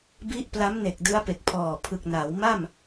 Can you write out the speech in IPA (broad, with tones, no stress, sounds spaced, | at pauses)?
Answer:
b i˦˥ ʔ p l a˦˥ m n e˨˩ k̚ d ɯ˦˥ a̯ p e˨˩ k̚ pʰ ɔː˨˩ pʰ ɯ˨˩ k̚ n aː˩˦ w m a˥˩ m